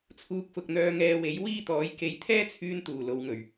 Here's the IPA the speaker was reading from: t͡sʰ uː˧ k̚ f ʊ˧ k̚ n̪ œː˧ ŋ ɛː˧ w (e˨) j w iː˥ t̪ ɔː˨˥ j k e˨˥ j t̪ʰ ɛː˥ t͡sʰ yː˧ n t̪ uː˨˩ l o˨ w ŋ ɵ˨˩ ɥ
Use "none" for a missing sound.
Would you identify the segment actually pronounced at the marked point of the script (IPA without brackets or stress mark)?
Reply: e˨˥